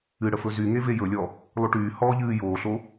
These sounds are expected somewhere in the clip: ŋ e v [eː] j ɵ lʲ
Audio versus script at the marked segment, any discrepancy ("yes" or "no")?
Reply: yes